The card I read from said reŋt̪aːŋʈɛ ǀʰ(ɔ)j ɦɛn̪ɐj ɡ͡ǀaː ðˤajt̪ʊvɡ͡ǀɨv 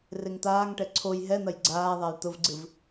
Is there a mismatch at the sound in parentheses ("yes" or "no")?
yes